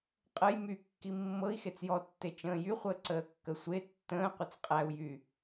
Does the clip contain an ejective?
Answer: yes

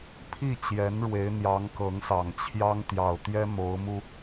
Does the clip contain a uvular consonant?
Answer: no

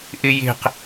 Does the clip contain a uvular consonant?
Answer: yes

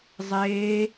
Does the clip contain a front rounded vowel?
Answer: no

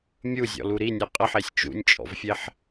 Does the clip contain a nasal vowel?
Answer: no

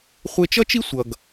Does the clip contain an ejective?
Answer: no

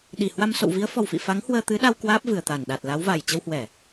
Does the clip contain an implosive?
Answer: yes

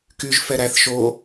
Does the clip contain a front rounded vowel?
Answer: yes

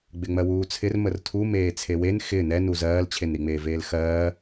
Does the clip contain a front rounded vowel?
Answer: no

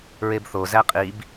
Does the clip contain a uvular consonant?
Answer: yes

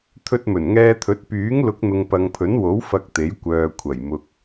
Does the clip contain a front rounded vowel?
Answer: yes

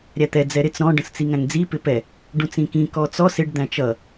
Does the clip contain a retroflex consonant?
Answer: yes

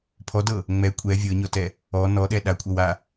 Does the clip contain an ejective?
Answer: yes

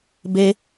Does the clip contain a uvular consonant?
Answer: no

